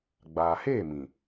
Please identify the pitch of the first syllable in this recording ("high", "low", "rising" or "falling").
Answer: low